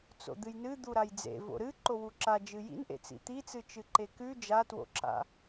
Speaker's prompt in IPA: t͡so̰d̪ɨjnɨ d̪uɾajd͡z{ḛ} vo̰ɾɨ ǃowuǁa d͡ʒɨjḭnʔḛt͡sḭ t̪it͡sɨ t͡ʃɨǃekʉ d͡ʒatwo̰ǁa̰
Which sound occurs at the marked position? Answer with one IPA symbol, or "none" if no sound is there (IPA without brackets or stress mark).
ḛ